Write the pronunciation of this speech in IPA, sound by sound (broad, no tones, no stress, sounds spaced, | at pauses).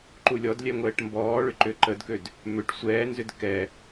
ǃ u lʲ ɔ d lʲ ɛ ŋʷ ɛː ʈ m b ɔː ɭ ʏ ǃ ʏ ǃ ə d k ø d | m ʏ ʈ sʷ ɛː n z ʏ d k ɛ